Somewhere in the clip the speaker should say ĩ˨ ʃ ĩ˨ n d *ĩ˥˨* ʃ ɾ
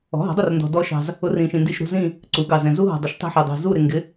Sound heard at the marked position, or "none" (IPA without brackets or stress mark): i˥˨